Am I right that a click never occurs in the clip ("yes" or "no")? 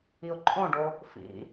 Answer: no